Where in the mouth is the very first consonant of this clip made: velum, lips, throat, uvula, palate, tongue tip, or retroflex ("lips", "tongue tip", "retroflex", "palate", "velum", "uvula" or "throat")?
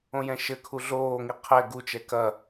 palate